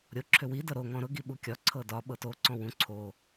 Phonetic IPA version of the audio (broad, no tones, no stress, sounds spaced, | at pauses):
ɾʲ o ǁʰ ʏ w i d ɤ ɾ o ŋ ɔ̃ ɾ ʊ ɡ i ɓ u kʲ ɒ ǀʰ ɤ d ɒ ɓ ɤ t o ǀ ɔ̃ w ũ ǀʰ o